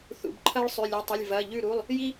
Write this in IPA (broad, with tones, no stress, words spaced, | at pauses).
θṵ˩˧˩bǃʰɐ˦ɭ sˤʉ˩˧˩lʲʉ˩˧˩tˤɨ˩˧˩lʲ vɐ˩˧˩ ʎʉ˧˩ɾu˩˧˩lˠ | ji˦